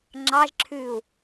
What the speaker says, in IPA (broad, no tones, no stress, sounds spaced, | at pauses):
ŋ͡ǁ ɑ ʒ ǁʰ ʉː u̯